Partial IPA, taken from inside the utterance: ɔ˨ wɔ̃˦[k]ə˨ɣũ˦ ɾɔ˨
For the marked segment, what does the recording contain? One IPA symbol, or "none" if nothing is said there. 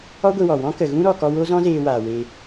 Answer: k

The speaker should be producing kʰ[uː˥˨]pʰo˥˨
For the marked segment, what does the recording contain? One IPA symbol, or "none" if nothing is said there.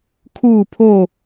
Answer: uː˥˨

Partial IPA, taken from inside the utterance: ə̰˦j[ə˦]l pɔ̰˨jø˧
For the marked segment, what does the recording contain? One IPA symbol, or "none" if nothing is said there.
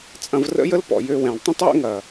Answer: ə˦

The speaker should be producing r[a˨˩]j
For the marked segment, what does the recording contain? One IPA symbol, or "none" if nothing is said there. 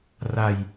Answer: a˨˩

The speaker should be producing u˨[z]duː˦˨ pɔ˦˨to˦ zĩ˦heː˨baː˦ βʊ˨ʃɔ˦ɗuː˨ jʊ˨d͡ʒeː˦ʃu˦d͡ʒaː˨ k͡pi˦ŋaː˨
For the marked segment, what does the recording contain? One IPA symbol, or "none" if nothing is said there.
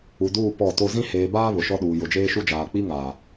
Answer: none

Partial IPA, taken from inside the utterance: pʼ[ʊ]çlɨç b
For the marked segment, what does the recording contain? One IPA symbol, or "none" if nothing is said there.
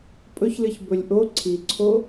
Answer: ɵ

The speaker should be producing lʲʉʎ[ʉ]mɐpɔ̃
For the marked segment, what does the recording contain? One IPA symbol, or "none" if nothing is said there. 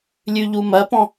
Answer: u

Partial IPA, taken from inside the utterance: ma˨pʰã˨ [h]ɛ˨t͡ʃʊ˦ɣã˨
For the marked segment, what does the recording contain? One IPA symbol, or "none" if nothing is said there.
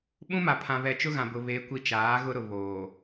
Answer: β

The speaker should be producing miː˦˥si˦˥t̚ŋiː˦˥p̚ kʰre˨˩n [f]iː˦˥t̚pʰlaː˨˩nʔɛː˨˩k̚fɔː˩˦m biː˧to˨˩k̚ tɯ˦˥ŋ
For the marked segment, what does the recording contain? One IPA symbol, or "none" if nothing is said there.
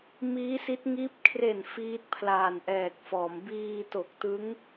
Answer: f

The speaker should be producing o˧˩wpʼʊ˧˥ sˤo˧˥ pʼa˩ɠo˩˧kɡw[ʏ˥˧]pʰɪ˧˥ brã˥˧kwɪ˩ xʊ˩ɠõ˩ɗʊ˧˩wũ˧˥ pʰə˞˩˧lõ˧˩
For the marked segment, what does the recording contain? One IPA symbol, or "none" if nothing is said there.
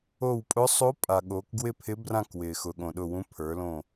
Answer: ɪ˥˧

